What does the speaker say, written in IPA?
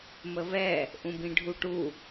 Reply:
m ə β ɛ | ʔ ũ b ĩ ɖʱ u ʈ u

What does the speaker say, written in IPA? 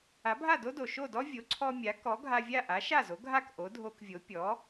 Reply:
a˩˥ bʱ a˥˩ d o˥ d o˩ ʃ o˥˩ d ɔ˥ vʲ o˩˥ ǀʰ ɔ˧ mʲ a˩˥ k ɔ˩˥ ɡʱ a˧ vʲ a˥˩ ʔ a˩˥ ʃ a˥˩ z o˩˥ ɡʱ a˥˩ k ʔ o˩˥ dʱ o˧ k vʲ o˩˥ pʲ ɔ˩˥

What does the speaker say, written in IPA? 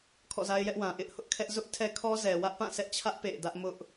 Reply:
kʰ ɔ̰˦˨ z a˦ ɪ̯ j ɛ˦ ʔ w ã˨ ʔ ɪ˦ ʔ h ʊ˦ ʔ kʰ ɛ˦ ʔ z ʊ˦ ʔ tʰ ɛ˦ kʰ ɔ˦ z ɛ˨ w ä˦ ʔ p ã˦˨ s ɛ˦ ʔ t͡ɕʰ ä˦ ʔ p ḛ˦˨ ɪ̯ d ä˦ ʔ m ʊ˦ ʔ

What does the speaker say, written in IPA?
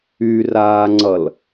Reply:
y r aː ŋ͡ǀ ʌ l

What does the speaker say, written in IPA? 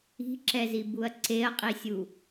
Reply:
i̤ ǁ ɛ z i b u ɐ̯ ǀ e ɐ̯ qʼ i sʲ u

